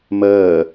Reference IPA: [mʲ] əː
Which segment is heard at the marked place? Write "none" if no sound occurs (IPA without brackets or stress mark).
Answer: m